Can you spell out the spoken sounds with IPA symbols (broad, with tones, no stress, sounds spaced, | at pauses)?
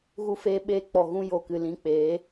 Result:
ɣ u˦ f eː˦ ɓ eː˧ k͡p ɔ˨ ɣ ũ˧ j o˨ k ɨ˨ l ĩ˧ k͡p eː˨˦